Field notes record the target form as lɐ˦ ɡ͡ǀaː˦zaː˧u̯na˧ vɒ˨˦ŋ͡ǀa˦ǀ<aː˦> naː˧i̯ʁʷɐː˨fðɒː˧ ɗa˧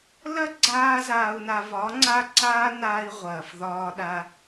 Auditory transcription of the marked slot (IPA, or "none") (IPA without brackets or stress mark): aː˦